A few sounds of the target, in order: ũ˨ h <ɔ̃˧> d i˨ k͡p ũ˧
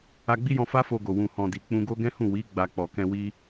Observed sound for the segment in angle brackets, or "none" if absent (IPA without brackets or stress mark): ɔ̃˨